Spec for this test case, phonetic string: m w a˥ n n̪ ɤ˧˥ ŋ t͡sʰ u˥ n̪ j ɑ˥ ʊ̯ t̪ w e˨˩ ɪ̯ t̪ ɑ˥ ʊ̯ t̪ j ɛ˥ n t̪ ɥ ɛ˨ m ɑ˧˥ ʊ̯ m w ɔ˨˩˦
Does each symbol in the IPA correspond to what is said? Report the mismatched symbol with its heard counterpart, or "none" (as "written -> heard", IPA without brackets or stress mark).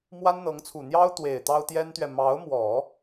u˥ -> u˨˩